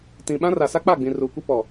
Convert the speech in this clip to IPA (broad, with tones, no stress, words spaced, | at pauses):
tĩ˨ ɓã˦ra˨ sa˦k͡pa˦˨ɡ͡bĩ˨ ruː˨kʷi˦ pɔ˨